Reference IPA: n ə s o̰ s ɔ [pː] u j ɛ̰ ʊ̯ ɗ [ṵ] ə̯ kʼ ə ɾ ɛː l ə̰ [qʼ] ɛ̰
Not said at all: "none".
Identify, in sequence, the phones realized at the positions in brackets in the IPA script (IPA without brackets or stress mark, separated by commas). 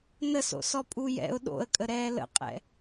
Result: pʼ, o̰, qʼ